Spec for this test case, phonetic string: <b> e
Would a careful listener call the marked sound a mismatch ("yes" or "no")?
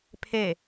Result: yes